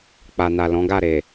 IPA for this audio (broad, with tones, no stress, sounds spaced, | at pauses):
k͡p a˨ n a˨ l ɔ̃˨˦ ɡ a˦˨ ɾ e˨